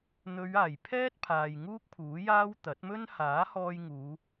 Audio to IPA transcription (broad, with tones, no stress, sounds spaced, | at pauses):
n̪ ɵ˨˧ ɥ aː˨˩ j pʰ ɛː˥ t̚ pʰ aː˨ j ŋ uː˥ k̚ pʰ uː˨˥ j aː˥ w t̪ ɐ˨˥ t̚ m ɵ˥ n h aː˨˥ h ɔː˧ j ŋ uː˨˧